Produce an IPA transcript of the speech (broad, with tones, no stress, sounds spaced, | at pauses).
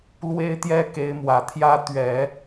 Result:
l w e˥ ɪ̯ t̪ j ɛ˥ k e˧˥ ɪ̯ m w ä˨˩ t̪ʰ j ä˥ t̪ ɥ ɛ˨˩˦